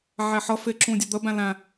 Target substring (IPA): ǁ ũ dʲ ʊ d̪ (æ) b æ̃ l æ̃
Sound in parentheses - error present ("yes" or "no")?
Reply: yes